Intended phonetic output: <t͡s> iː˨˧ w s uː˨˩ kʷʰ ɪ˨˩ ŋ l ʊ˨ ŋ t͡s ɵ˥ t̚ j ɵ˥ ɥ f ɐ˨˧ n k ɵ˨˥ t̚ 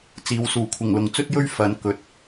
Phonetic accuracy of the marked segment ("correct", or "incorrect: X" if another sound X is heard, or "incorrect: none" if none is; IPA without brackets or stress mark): correct